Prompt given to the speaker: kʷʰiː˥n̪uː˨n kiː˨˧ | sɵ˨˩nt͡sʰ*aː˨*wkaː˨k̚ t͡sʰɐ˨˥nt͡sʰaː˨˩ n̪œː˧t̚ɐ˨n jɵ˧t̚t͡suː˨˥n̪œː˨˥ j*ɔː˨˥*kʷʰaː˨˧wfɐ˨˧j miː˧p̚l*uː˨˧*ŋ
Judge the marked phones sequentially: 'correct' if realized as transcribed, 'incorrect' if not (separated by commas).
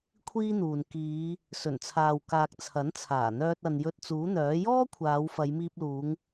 correct, incorrect, correct